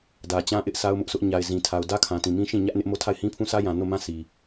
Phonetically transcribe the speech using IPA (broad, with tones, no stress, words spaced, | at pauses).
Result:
dä˨t͡ɕã˦ʔɪ˦ʔ sʰa˦ʊ̯mʊ˦ʔsʰʊ˦ʔ ɲa˨ɪ̯zĩ˨tʰa˨ʊ̯ dä˦kʰã˨tĩ˨ mĩ˦ʃĩ˦˨ɲä˦ʔ nɪ˦ʔ mo˦tʰa˦˨ɪ̯hĩ˦pʰũ˦ sä˦jã˨ no˦˨mã˦ si˨